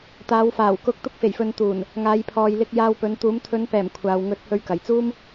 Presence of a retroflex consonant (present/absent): absent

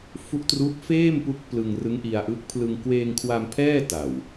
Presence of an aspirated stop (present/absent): present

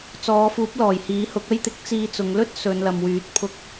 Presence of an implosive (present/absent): absent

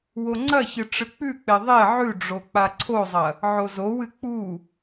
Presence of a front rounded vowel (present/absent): absent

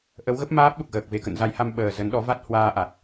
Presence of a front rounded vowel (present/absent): absent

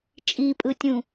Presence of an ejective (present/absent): present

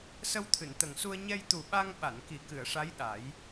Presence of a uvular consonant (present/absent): absent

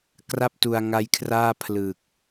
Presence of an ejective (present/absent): absent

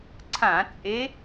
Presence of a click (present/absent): present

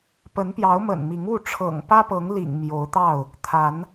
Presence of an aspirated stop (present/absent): present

